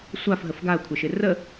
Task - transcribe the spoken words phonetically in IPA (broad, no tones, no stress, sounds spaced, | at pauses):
sʷ a f ɦ ə f ɡ a ə̯ kʷʰ ɛ ʃ ɪ r ə